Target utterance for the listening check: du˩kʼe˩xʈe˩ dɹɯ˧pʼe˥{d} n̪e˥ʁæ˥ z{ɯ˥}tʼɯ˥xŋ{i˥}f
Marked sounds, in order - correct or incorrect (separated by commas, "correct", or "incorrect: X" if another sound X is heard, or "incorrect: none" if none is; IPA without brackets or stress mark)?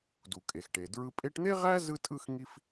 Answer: incorrect: ʈ, correct, correct